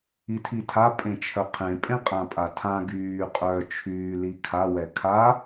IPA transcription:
i tʰ i tʰ a pʼ ẽ t͡ʃʰ œ qʰ ẽ pʼ ẽ qʼ ã pʼ a tʰ ã ɡ yː qʼ œ t͡ʃʰ yː l i kʰ a w ɛ kʰ a

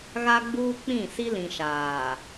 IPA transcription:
ɣ a˦ ɡ͡b uː˦ k͡p ĩ˦˨ s i˦ l ĩ˨ ʃ aː˨

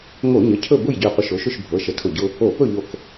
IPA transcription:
ŋ o˧˩˧ ɲ ə˩˧˩ cʰ ɵ˥˨ b ʊ˥˨ j ɟ ø˧˩ qʷ ə˧˩ ʃ o˨˦ ʃ ʊ˥˨ ʃ bʱ ɤ˩˧˩ ʃ ə˨˦ tʰ ʊ˧˩ ɟ ʊ˦ | o˧˩˧ p ɵ˥˨ ʎ o˧˩ k

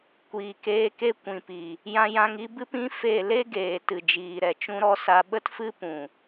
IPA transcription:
kʷ iː˨ k eː˧ k e˦ kʷ ĩ˨ p i˨ | j ã˧ j ã˧ ŋ i˦ b ɨ˦ p ĩ˦ f e˦˨ l e˦ ɡ eː˨ t ɨ˨ d͡ʒ iː˨ ɾ ɛ˨ t͡ʃ ũ˦ ɾ ɔ˦ s a˧ ɓ ə˦ t f ɨ˦ p ũ˨

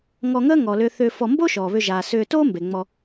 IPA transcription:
ŋ ɔ˨ ŋ əː˦ ŋ ɔ˩ l ʏː˨ θ ʏː˨ f ɔ˨ m b o˥ ʃ ɔː˩ β ʏ˨ ʒ aː˩ s ʏː˨ t oː˦ m b e˩ ŋ͡m ɔ˨

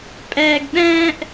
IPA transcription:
pʼ ɛ˥ ɡ ɗ ɛ̃ː˥ ʔ

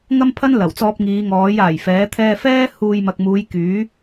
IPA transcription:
ŋ ɐ˥ m pʰ ɐ˥ n l ɐ˨˩ w t͡s ɔː˧ p̚ ŋ iː˨˧ ŋ ɔː˨˥ j aː˨˩ j f ɛː˨˥ t̪ʰ ɛː˧ f ɛː˥ h uː˧ j m ɐ˨ k̚ m uː˨˧ j k yː˨˥

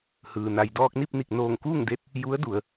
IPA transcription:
h ɯː˩ n a˩ j d ɔː˧ k̚ n i˥˨ p̚ n i˧˩ k̚ n oː˧˩ ŋ k uː˥˨ ŋ d e˧ t̚ | j u˧˥ ə̯ d u˩˧ ə̯

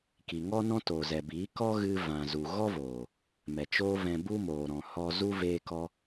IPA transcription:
k i˨ ŋ ɔ˦ n ɔ̃˦ t o˨ z ɛ˨ b iː˨˦ k ɔ˦ ɣ ɨ˧ v ã˨ z u˨ ɣ ɔ˦ v oː˨ | m ɛ˨ t͡ʃ oː˦ v ɛ̃˧ b u˦ m oː˨ ɾ ɔ̃˨ h ɔ˧ z u˦ v eː˧ k ɔ˧

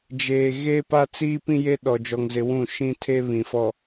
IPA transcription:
d͡ʒ eː˨ ɣ eː˦ p a˦ t͡s iː˦ p ĩ˦ j e˦ ɗ ɔ˨ d͡ʒ ɔ˨ ŋ z ɪ˨ w ũ˦˨ ʃ ĩ˦ tʰ e˦ β ĩ˨ f ɔ˨

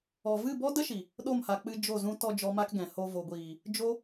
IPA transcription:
ɔ˨ v ɨ˦˨ b ɔ˦ d ə˦ ʃ i˨ | ɗ o˦˨ m h a˨ k͡p ɨ˧ d͡ʒ o˦˨ z ũ˦ t ɔ˧ d͡ʒ ɔ˦ m a˦ k ɡ ɛ̃˨ h o˧ v o˨ ɡʷ iː˨ | d͡ʒ o˦

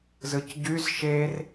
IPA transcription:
z ɯ c ɟ y z ʃ e r

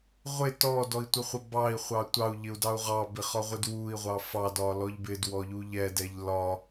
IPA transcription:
ʁʷ ɪ t ɔ d ɔ i̯ tʷ ə χʷ ə b ɑ i̯ χʷ ɑ tʷ ɑ u̯ ʎ ɪ u̯ d ɑ u̯ ʁ ɑ b ɪ χ ɒ ʁʷ ɪ d w u i̯ ʁʷ ɑ f ɑ d ɒ l ɔ ʎ b ɪ d w ɔ ʎ u ʎ ɛ d ɛ ʎ l ɒ

